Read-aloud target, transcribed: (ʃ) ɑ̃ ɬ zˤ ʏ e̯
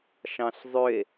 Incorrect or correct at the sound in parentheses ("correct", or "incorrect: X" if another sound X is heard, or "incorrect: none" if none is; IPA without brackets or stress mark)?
correct